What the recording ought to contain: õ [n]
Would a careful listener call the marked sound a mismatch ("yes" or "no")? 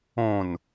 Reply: no